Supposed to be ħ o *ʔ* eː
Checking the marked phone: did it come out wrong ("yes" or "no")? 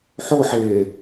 yes